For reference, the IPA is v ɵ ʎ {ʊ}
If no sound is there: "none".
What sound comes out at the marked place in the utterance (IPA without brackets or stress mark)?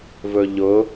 ʊ